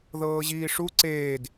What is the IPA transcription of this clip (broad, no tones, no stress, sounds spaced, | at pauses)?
ð ɤː ʑ iː ʂ u ǀ eː d